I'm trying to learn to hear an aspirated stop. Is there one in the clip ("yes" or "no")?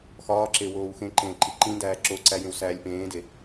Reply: no